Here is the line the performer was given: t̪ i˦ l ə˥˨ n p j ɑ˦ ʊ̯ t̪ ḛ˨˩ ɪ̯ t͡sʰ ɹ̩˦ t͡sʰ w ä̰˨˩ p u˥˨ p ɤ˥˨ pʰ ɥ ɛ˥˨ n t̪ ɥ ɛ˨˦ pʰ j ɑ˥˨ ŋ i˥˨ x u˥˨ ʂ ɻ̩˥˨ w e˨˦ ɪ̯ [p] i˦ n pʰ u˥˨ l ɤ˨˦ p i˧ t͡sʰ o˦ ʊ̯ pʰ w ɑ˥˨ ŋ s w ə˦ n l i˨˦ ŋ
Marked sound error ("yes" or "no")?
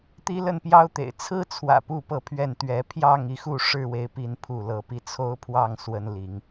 no